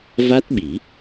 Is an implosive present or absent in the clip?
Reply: present